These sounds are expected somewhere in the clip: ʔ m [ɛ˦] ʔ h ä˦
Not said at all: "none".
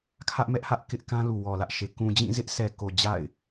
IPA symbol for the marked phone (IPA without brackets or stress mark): ɛ˦